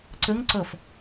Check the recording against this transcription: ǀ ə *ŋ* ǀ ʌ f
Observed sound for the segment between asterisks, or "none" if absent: ŋ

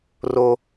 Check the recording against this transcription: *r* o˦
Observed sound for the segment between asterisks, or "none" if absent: r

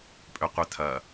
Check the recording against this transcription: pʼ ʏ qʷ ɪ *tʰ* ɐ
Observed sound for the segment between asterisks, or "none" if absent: tʰ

